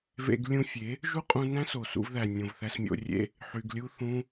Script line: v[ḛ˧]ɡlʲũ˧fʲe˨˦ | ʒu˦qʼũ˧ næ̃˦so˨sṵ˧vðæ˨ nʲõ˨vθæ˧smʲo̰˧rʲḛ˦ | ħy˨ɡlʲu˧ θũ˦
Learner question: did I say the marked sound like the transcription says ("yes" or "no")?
yes